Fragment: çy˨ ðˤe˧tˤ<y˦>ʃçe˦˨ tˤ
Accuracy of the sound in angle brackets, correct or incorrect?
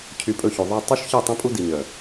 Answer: correct